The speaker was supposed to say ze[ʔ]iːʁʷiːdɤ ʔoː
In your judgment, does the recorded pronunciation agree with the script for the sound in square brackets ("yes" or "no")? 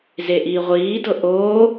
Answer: yes